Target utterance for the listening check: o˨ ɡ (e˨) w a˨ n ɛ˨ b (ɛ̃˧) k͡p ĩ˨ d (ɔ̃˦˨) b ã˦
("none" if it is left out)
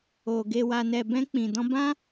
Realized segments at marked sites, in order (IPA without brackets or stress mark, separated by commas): e˨, ɛ̃˧, ɔ̃˧